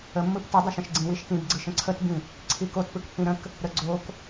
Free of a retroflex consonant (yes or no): yes